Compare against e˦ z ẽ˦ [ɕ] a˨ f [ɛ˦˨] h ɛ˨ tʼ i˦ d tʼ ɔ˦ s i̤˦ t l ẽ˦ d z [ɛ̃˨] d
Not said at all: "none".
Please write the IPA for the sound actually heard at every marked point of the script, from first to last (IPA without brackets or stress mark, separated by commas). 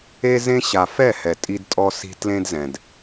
ɕ, ɛ˦˨, ɛ̃˨